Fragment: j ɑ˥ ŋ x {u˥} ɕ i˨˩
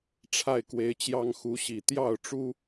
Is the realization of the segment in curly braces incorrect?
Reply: yes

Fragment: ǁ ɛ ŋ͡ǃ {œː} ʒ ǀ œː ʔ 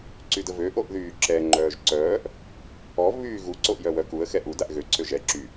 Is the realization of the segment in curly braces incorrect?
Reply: no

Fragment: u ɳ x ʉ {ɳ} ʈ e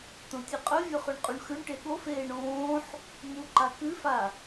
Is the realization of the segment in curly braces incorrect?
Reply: no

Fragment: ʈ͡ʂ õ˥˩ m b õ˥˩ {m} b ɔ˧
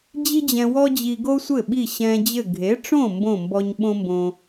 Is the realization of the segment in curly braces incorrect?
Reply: no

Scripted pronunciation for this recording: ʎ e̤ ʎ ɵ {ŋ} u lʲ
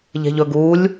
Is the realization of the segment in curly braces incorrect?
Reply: yes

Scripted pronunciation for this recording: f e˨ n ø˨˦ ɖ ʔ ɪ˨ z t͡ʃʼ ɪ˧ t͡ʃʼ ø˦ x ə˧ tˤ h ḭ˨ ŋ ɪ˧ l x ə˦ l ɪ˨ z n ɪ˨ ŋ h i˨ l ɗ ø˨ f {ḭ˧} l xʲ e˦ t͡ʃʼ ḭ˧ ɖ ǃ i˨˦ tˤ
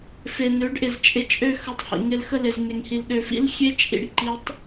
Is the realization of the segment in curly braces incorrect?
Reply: yes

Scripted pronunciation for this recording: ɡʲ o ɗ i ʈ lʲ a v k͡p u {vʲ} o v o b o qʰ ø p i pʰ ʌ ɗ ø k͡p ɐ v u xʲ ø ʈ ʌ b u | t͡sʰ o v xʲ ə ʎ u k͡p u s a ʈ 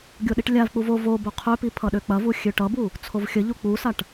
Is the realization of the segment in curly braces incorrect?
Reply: yes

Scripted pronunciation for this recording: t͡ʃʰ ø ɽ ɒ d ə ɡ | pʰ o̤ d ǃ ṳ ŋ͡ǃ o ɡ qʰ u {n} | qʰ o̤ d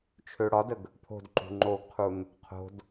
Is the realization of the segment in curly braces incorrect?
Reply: no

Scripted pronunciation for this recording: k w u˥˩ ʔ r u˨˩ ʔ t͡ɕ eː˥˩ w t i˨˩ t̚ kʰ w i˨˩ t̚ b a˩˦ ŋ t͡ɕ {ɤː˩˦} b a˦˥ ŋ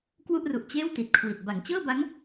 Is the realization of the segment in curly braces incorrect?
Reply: yes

